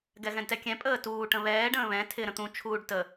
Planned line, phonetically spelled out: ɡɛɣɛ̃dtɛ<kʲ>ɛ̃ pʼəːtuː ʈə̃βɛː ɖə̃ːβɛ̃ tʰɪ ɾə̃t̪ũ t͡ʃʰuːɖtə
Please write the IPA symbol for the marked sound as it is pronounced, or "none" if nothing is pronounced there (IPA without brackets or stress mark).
kʲ